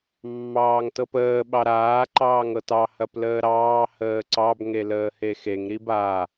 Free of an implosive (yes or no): no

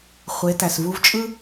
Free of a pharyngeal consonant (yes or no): yes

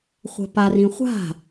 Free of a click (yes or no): yes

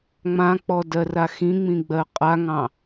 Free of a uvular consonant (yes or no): no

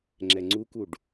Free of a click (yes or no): no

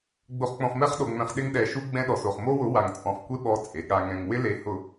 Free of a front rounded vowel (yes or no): yes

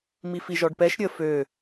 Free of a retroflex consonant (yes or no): no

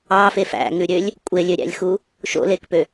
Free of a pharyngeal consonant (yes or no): yes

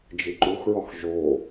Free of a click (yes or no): no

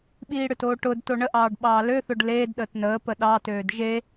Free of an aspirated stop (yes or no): yes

